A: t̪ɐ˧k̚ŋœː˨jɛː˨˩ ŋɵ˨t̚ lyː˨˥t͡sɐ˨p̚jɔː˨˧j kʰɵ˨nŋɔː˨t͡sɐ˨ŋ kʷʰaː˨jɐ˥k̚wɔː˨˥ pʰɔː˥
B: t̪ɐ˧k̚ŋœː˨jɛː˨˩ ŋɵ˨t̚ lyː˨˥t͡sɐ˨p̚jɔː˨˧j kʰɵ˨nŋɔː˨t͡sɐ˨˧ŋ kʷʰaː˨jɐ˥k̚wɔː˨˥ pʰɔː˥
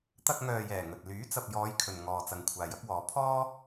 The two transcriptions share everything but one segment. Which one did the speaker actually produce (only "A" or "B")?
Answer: A